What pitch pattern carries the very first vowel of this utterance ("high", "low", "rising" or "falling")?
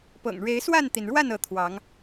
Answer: low